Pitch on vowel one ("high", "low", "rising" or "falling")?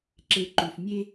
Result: low